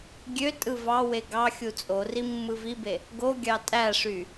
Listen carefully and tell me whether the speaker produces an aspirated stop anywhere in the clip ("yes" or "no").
no